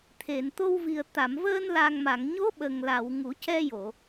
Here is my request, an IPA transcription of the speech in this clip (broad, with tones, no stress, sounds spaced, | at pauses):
t̪ʰ e˨˩˨ n t̪ o˧ w v i˨˩ ə̯ t̪ a˨˩˨ m v əː˧ n l a˨˩ ŋ m a˨˩˨ ŋ ɲ o˧˥ ɓ ə˨˩ ŋ l a˨˩˨ w ŋ u˨˩˦ c ɛ˧ j o˨˩˨